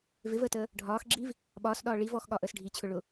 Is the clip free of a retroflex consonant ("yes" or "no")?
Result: no